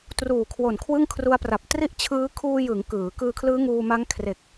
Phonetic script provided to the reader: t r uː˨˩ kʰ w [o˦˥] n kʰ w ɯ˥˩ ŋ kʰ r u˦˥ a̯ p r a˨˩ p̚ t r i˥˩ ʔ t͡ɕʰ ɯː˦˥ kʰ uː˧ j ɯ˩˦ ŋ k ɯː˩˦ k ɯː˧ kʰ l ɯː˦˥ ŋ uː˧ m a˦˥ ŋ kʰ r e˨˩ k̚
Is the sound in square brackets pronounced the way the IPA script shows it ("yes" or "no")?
no